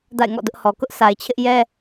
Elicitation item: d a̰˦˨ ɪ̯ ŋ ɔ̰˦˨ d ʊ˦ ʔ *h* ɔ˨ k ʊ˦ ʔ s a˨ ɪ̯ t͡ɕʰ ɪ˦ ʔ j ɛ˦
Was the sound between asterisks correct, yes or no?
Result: yes